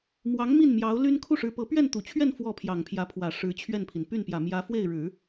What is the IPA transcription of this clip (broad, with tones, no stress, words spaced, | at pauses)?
mwɑ˧˥ŋ mi˥˩nmjɑ˧˥ʊ̯ly˥n kʰu˥˩ʂɻ̩˧˥pɤ˧˥ pɥɛ˥˩nt̪u˨˩t͡ɕʰɥɛ˥˧n fwɔ˥˩pʰjɑ˨˩ŋpʰjä˧˥pʰwä˨˩ ʂɻ̩˧˥t͡ɕʰɥɛ˥˩npʰi˩n py˥˩npjä˨˩mjä˧˥ fwe˥˩ɪ̯ɻɻ̩˨˩˦